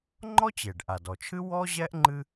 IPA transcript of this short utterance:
ŋ͡ǃɔ˥t͡ɕe˩ɖ ʔa˩dɔ˩t͡ʃʰɨ˥ wɔ˥ʑɛ˥ʔ ŋ͡ǃɨ˥

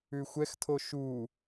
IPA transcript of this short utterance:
ʉxʷɛxtʰo ʃu

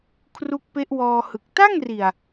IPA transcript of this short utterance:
kʰru˦˥k̚pe˦˥ʔwɔː˧hɯ˨˩k̚ ta˥˩ŋri˨˩a̯

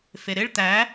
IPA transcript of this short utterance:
feɾɪɭ t̪æ

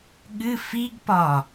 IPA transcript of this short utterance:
ɠɨ fiɡpɒ

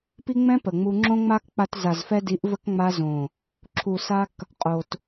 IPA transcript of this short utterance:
pi˦ŋ͡mɛ̃˦ pə˨ŋ͡mu˧ ŋ͡ǁõ˦ŋ͡ma˦kk͡pa˧t za˨zfɛ˧di˨˦ʔvə˧k ŋ͡ma˧zõ˨ | ǁʰu˨sa˧k | qʼo˨t

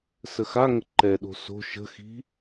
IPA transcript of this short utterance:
səxaŋə ǃɛɗo̤ so̤ ʃə̤xi̤

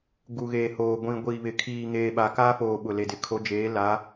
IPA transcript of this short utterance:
ɡu˨ɣeː˨hoː˨ ɡʷĩ˨ɡʷiː˨βɪ˨ kʰiː˨ŋeː˨ɓa˨ kaː˦foː˨ ɓʊ˨le˨dɪ˨ kʰo˨˦d͡ʒeː˨˦ la˨˦

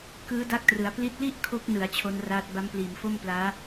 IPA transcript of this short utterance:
kɯː˦˥da˦˥k̚trɯ˩˦a̯ pli˦˥t̚ li˥˩ʔ kʰo˦˥k̚nɯ˩˦a̯ t͡ɕʰo˦˥nraː˦˥t̚ ba˦˥mpliː˨˩m fo˥˩mplaː˦˥

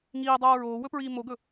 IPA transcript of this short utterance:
ŋiːdˤoː ɹoːwɵpɹiː moɡɵ

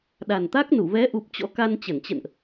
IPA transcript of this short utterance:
ɗa˨˩nt̪a˦˥k̚nu˧˩ vɛ˨˦ʔu˨˩p̚ t͡ɕɔ̰˧˥ka˧nt͡ɕə˧˩nt͡ɕə̰˧˨nʔ

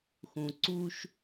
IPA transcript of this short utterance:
xũ˨ǀu˦ʃ

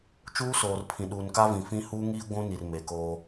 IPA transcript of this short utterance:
t͡ʃuː˦soː˨rpʰĩ˨ ɗuː˨nka˦ vĩ˨ fĩ˦ huː˦ŋiː˦ ɡʷũ˦ni˨r me˨koː˦

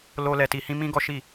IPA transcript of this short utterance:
lo˦ lɛ˧ti˧hĩ˦ mĩ˦ɡɔ˦ ʃi˦˨

